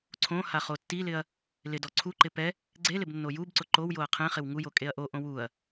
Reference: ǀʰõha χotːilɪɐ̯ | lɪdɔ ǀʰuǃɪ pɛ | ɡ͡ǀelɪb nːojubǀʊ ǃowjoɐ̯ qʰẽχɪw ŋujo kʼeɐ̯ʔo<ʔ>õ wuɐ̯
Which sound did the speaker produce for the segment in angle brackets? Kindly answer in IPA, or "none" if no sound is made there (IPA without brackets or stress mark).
ʔ